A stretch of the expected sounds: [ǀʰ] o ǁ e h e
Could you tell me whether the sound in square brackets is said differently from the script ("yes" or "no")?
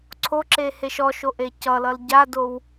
no